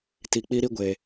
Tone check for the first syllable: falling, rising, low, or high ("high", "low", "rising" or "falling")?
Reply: low